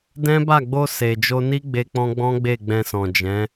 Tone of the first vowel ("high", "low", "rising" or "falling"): high